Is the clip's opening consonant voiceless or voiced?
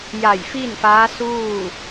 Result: voiced